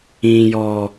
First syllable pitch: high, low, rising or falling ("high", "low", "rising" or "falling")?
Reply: low